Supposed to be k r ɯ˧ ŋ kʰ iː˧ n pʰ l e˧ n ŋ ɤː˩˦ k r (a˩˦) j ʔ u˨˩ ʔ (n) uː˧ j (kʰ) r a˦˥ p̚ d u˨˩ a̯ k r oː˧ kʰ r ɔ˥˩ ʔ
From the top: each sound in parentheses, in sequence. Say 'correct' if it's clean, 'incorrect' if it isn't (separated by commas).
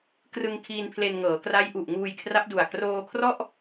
incorrect, incorrect, correct